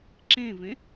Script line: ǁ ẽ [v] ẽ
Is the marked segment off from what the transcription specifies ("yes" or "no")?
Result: no